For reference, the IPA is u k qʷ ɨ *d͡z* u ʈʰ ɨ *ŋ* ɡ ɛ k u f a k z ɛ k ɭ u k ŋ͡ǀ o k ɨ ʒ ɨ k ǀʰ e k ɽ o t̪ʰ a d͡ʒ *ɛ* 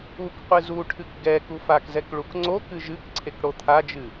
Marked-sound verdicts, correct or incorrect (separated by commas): incorrect, incorrect, incorrect